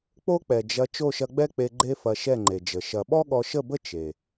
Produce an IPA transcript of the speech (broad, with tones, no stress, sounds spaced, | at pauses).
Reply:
k͡p o˦ k͡p ɛ˨ d͡ʒ ɐ˧ t͡ʃ o˦˨ ʃ ɐ˧ ɡ͡b ɛ˦ k͡p e˧ ɡ͡ǃ e˦ f ɐ˧ ʃ ɛ˦˨ ŋ͡ǃ e˨ d͡ʒ ə˨ ʃ ɐ˨ ɓ ɔ˦ ɠ ɔ˧ ʃ ə˦˨ b ə˦ t͡ʃ e˨